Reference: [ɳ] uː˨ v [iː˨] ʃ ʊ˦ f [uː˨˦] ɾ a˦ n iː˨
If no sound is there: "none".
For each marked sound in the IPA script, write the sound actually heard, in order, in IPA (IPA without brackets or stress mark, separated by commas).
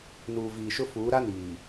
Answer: n, iː˨, uː˨˦